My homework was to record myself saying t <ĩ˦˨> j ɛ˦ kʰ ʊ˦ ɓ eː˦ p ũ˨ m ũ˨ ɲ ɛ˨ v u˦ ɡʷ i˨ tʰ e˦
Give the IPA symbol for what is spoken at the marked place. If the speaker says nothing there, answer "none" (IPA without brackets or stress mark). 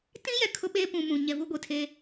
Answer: ĩ˦